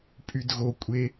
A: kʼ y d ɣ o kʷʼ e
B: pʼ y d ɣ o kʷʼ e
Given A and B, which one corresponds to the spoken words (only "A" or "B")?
B